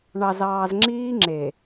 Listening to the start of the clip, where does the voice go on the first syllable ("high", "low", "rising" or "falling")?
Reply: low